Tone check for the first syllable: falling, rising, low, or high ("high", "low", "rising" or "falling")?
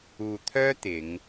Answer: low